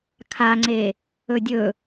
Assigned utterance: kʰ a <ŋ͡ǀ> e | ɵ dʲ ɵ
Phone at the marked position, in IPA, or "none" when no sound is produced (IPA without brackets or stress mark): ŋ͡ǀ